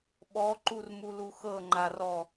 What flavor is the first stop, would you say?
implosive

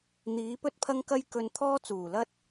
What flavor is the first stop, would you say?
plain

